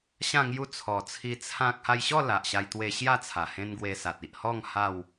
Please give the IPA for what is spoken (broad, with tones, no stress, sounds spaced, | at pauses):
ɕ ã˥˧ ŋ j u˦ t͡sʰ ɔ˨˩ t͡sʰ i˧ t͡sʰ ã˦ k̚ h a˧ j ɕ ɔ˥˧ l a˨ ʔ ɕ a˧ j t̪ w e˧ ɕ j a˥˧ t͡sʰ a˨˩ h ẽ˦ n ɡ w e˧ s a˨ t̚ i˨ ʔ h ɔ˥˧ ŋ h a˥˧ w